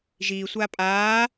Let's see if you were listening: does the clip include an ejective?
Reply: yes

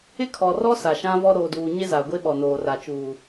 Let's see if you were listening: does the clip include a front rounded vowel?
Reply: no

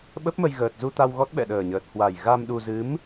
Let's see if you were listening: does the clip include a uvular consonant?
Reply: no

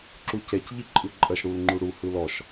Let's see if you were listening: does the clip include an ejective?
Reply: yes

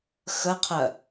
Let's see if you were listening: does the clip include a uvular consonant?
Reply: yes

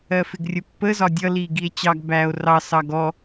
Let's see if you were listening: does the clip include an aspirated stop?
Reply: no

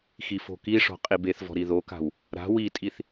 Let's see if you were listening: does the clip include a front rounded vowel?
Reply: no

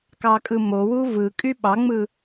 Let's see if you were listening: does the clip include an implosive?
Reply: yes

